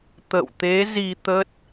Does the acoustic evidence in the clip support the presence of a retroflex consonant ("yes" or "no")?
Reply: no